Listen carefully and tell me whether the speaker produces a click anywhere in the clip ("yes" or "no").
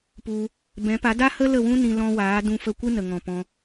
no